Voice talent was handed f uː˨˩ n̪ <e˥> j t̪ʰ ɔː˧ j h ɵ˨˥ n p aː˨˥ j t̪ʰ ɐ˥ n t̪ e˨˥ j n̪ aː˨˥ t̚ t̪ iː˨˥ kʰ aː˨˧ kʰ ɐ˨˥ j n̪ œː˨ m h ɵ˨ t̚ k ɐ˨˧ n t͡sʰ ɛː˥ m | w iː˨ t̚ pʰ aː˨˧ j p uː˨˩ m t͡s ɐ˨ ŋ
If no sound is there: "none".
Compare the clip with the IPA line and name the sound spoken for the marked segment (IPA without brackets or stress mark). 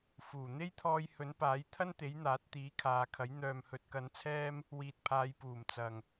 e˥